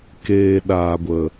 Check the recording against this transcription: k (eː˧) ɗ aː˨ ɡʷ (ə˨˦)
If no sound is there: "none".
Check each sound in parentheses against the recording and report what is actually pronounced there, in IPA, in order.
eː˧, ə˨

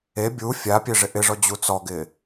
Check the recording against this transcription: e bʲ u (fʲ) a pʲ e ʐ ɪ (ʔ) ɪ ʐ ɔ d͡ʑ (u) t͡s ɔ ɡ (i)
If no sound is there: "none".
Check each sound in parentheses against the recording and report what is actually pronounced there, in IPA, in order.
fʲ, ʔ, u, ɪ

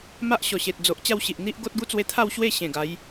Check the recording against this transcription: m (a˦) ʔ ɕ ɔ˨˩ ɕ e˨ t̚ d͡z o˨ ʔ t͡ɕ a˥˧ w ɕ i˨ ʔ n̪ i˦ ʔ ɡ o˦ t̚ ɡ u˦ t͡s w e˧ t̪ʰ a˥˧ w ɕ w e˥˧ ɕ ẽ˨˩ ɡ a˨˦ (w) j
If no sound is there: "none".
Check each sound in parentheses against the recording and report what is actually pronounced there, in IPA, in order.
a˦, none

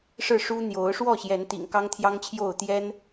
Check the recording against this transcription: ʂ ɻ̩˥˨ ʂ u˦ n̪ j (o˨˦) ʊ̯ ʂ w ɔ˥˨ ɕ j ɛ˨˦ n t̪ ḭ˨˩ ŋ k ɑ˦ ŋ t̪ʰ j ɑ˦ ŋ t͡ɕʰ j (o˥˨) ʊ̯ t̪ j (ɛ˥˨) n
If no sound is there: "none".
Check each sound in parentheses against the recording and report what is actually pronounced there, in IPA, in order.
o˨˦, o˥˨, ɛ˦

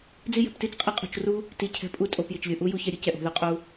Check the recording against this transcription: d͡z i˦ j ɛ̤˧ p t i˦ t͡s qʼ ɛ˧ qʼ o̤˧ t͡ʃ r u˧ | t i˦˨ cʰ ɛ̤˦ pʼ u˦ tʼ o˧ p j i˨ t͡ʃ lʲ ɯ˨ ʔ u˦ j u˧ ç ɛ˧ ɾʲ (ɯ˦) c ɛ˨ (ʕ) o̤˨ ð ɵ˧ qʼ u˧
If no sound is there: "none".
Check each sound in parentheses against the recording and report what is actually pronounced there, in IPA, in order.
ɯ˦, ʔ

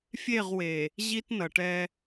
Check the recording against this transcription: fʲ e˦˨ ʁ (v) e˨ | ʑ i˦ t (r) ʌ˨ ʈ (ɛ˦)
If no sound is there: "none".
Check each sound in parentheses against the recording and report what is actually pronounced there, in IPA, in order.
w, n, ɛ˦

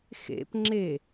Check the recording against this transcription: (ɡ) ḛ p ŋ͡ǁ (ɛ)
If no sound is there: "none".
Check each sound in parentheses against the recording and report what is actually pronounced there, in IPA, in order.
x, e

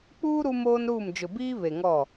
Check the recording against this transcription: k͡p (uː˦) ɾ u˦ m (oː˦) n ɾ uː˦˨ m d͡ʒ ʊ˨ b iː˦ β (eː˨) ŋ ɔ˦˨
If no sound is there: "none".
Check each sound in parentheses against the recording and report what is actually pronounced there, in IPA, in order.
uː˦, oː˦, e˨

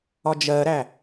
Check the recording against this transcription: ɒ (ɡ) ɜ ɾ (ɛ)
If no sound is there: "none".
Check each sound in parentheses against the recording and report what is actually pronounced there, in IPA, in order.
d͡ʒ, æ

